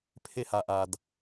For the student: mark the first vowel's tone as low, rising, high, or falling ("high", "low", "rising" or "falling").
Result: high